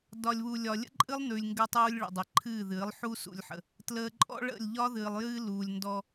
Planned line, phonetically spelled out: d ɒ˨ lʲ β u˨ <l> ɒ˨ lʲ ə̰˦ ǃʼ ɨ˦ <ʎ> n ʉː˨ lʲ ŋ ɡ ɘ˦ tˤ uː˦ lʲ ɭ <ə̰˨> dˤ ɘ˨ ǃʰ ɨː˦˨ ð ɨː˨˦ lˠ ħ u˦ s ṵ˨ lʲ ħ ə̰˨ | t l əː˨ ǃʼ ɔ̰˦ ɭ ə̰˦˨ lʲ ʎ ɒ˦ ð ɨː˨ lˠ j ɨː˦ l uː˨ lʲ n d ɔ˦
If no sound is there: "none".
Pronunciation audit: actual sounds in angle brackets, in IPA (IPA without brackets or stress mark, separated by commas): lʲ, lˠ, ə̰˨